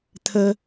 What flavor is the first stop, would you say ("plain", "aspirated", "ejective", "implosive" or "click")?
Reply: aspirated